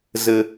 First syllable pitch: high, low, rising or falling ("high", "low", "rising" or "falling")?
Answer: low